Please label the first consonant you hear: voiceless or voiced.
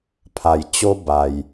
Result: voiceless